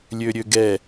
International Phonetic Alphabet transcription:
lʲ ø ɾʲ ø ɡ ɛ

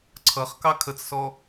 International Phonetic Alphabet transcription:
ǀʰ ʌ χ k ɑ kʰ ə t͡s s ɔ

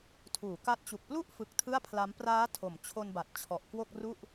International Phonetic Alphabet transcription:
tʰ uː˩˦ k a˦˥ t̚ t͡ɕ u˨˩ k̚ p l u˥˩ ʔ f ɯ˨˩ k̚ tʰ ɯ˥˩ a̯ pʰ l a˦˥ m p r aː˦˥ tʰ o˨˩ m t͡ɕʰ o˧ n b a˨˩ t̚ t͡ɕʰ ɔ˨˩ ʔ k w o˥˩ k̚ r u˥˩ ʔ

